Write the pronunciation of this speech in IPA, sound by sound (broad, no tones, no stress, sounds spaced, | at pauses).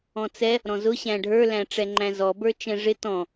ɔ̃ t͡s ɛ | ɾ ɔ̃ z ʊ ɕ æ̃ ɖʱ ə˞ l æ̃ ʈ͡ʂ ɛ ŋ͡ǃ æ̃ z ɔ b ə˞ t͡ʃ ɛ̃ ʐ ɪ t ɔ̃